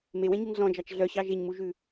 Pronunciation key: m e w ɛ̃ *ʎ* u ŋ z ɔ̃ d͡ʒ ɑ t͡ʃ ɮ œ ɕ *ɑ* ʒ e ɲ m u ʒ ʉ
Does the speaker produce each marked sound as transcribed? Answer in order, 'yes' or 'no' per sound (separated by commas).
no, yes